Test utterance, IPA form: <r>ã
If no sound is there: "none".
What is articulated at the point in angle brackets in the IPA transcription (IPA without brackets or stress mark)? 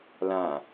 l